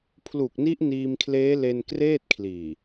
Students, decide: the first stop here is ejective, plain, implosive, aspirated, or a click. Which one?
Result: aspirated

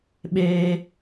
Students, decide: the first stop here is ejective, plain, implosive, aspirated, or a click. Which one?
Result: implosive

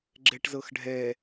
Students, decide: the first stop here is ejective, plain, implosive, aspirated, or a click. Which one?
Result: click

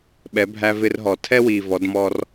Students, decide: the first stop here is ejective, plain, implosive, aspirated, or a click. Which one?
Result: implosive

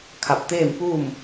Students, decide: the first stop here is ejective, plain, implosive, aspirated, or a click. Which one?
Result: aspirated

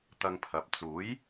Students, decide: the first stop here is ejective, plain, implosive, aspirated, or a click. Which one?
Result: plain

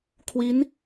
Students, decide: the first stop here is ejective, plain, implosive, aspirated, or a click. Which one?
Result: aspirated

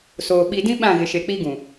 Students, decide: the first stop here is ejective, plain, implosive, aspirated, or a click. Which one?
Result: implosive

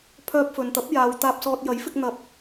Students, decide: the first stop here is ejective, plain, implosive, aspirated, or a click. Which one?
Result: aspirated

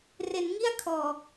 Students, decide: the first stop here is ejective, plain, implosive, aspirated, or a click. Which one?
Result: aspirated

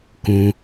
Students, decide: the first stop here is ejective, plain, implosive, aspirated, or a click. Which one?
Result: plain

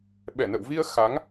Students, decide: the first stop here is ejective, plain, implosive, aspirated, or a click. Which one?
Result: implosive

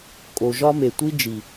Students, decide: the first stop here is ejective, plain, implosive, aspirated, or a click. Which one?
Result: ejective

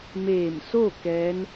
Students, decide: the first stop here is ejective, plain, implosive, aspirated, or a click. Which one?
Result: plain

